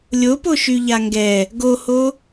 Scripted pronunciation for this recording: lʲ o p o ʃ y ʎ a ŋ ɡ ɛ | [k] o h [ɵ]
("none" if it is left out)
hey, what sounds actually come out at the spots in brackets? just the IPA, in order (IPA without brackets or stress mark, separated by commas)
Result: ɡ, o